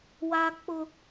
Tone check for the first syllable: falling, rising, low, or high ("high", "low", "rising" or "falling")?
high